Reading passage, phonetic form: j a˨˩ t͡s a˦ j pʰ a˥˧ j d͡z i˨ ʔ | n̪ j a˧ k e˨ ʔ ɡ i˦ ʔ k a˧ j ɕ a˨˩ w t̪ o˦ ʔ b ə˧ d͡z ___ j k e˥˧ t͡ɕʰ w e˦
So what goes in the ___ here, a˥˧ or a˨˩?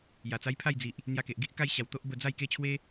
a˥˧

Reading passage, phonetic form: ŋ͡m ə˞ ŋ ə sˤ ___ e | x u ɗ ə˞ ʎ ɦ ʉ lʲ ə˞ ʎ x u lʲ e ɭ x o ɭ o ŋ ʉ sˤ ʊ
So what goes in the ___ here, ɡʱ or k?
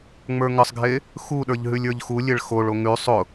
ɡʱ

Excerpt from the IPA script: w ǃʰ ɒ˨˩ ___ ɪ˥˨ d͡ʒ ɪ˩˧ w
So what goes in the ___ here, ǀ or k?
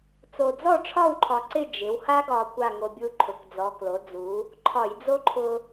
ǀ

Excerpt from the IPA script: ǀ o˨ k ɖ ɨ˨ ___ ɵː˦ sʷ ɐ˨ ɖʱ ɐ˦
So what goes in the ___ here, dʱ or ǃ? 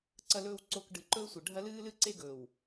ǃ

